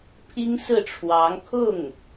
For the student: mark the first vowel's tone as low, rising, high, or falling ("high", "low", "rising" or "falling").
high